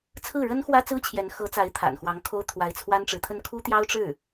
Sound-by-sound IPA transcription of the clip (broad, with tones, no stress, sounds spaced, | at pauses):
t͡sʰ ɹ̩˥˩ ɻ ə˥ n x w ä˥ t͡s ɹ̩˥ t͡ɕʰ j ɛ˧˥ n x ɤ˧˥ t͡s a˧˥ ɪ̯ t̪ʰ a̰˨˩ n x w ɑ˧˥ ŋ kʰ o˥ ʊ̯ t̪ʰ w a˧˥ ɪ̯ t͡sʰ w a˥ n ʈ͡ʂ ɻ̩˧˥ t̪ʰ ə˥ n kʰ u˥ t̪ j ɑ˥ ʊ̯ ʈ͡ʂ ɻ̩˥˩